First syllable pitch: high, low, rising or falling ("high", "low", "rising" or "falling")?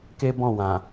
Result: high